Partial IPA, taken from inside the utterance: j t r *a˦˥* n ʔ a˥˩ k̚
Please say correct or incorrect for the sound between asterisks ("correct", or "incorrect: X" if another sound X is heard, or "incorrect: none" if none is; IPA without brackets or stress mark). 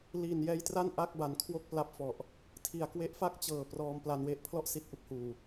incorrect: a˥˩